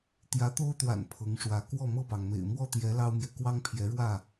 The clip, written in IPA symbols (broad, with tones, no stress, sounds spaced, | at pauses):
t̪ j ä˨˦ t̪ o˦ ʊ̯ t̪ w a̰˨˩ n pʰ ɤ˨˦ ŋ ʂ w ä˨˦ k w ɔ˥˨ m ɤ˥˨ p ɑ˩ ŋ m ḛ˨˩ ɪ̯ m w ɔ˥˨ t̪ j ɛ˨˦ l ɑ˦ ʊ̯ m j ɛ˨ k w ɑ˦ ŋ pʰ j ɛ˨˦ ɻ w ä˥˨